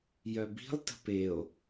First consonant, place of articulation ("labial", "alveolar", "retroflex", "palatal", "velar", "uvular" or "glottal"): palatal